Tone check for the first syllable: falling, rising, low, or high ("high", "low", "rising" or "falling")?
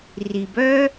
low